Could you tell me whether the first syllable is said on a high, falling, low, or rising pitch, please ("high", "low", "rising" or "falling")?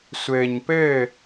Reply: low